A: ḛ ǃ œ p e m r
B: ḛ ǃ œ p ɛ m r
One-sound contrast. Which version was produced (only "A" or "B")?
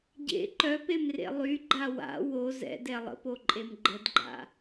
A